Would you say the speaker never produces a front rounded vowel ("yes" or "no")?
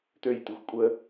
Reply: no